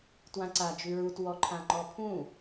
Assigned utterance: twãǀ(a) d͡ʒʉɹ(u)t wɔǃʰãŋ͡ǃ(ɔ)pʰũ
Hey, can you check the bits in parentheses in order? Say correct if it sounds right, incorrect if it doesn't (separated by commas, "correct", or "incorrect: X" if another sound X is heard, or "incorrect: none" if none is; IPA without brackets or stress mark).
correct, correct, correct